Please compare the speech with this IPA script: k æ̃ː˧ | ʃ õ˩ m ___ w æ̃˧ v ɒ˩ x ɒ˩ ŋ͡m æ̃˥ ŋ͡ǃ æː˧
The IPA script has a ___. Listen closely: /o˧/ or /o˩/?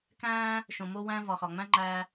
o˧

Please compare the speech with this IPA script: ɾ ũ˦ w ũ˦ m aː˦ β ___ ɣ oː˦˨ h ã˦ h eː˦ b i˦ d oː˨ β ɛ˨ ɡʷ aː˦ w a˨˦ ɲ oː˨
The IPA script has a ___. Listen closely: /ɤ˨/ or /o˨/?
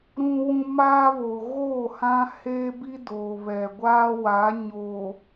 o˨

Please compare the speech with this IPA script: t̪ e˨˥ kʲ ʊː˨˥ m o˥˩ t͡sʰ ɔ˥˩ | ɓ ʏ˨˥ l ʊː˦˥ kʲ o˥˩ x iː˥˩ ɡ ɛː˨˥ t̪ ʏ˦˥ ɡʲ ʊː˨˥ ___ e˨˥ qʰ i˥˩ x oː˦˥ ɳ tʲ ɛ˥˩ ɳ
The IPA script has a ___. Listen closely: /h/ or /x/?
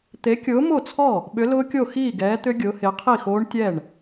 h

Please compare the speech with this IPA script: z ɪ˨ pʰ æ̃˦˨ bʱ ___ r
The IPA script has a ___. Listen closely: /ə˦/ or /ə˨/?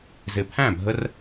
ə˦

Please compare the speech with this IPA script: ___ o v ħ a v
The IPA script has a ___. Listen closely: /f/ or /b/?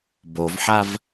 b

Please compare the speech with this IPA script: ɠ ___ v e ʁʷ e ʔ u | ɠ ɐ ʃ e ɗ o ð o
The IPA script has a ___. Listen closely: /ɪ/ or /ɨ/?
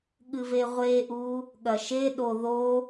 ɨ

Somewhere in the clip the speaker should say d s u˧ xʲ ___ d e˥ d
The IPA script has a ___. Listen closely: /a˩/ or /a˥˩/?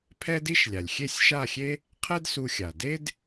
a˩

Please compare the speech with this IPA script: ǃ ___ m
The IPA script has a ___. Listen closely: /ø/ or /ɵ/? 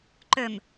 ø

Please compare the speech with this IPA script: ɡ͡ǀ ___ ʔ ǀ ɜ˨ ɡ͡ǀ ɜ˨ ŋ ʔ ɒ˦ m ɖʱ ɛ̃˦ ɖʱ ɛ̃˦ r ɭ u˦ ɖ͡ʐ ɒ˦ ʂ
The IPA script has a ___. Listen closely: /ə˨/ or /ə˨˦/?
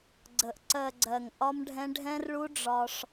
ə˨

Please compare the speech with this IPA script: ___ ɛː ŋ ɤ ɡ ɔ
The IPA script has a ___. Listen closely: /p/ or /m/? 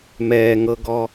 m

